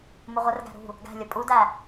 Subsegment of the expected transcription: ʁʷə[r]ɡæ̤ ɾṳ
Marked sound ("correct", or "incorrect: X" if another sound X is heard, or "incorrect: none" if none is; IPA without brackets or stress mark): correct